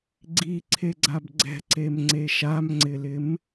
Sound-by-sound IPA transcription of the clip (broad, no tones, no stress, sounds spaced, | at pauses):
ɡ͡ǀ i ǀʰ e ɡ͡ǀ a b ɡ͡ǀ ɛ̤ ǀ e m ŋ͡ǀ e ʃ a m ŋ͡ǀ ɪ l ɪ m